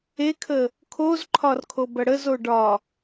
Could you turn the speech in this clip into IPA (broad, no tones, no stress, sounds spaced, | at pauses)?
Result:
e kʰ ə | kʰ o z ǃʰ ɒ r kʰ o b ɐ ɽ ə z o ɖ ɒ